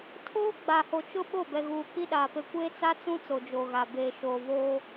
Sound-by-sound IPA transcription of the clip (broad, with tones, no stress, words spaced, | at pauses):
tʰoː˦ɡ͡ba˨ho˨t͡ʃʊ˦ ɓo˦˨bɛ˨ɣuː˨k͡pi˦ ɗaː˨pe˦ kʷe˦t͡sa˦t͡sũ˦ t͡so˨d͡ʒo˨ɣa˨ beː˨ʃoː˨ vo˦